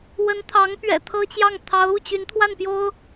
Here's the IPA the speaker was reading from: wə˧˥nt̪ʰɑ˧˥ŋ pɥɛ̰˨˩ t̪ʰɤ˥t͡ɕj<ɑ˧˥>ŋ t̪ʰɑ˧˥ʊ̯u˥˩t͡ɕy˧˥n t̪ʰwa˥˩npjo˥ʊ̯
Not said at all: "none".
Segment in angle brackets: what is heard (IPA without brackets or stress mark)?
ɑ˥˩